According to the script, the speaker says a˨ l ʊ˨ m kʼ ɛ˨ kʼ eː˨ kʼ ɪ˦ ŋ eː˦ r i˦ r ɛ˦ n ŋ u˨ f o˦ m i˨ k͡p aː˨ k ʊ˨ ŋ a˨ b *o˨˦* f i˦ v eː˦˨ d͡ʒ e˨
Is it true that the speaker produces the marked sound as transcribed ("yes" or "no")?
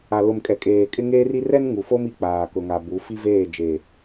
no